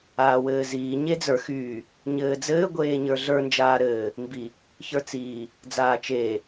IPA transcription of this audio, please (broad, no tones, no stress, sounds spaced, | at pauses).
aː w ɘː z iː ɲ e d͡z ə˞ x yː | ɲ ɘː d͡z ɘː ɡʷ eː ɲ ə˞ ɮ ə˞ n d͡ʒ aː ɾ ɘː | m b i | ç ə˞ t͡s iː | d͡z aː t͡ʃ eː